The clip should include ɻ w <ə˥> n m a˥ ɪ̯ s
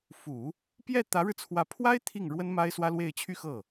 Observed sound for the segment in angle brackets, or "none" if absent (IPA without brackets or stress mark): ə˥